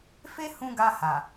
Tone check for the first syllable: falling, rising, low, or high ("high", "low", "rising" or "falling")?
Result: high